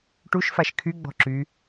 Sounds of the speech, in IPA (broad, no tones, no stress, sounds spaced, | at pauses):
ʈ u ʃ f a ʃ kʰ y ɡ͡b ɔ̤ ǁ y